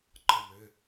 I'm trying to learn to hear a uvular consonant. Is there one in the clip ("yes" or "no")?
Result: no